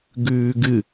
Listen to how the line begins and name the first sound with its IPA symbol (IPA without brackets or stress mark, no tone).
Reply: ɡ